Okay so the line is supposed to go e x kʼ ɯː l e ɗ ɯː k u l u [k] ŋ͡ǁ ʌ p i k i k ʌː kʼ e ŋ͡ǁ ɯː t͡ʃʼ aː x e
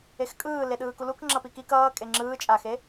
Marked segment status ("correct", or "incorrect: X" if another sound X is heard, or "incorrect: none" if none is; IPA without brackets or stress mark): correct